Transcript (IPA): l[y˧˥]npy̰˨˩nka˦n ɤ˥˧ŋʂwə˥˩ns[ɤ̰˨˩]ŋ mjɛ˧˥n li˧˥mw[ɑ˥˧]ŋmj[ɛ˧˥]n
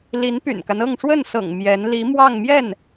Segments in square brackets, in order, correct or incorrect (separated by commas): incorrect, correct, correct, incorrect